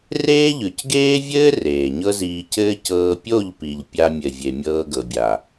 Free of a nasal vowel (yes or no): yes